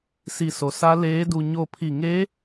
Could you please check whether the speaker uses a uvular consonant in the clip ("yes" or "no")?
no